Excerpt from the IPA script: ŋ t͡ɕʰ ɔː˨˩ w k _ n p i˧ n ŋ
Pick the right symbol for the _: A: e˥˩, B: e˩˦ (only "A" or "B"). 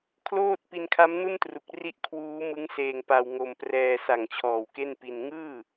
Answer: A